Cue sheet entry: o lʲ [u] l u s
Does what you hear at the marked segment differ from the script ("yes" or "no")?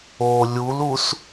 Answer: no